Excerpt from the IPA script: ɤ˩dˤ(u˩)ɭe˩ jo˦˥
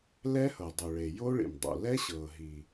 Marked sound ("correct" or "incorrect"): correct